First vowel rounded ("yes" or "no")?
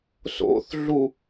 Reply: yes